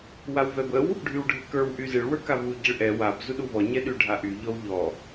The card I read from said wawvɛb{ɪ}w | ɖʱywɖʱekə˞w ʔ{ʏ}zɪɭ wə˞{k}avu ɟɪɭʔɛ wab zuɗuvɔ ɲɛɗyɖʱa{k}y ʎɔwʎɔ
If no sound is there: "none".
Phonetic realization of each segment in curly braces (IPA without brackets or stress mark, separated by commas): ə, y, k, ʔ